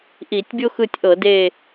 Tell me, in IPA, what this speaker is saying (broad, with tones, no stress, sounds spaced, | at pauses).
ʔ i˧˩˧ tʲ bʲ o˥ x ɯ˦˨ tʲ ʔ ɤ˧˩˧ d e˦˨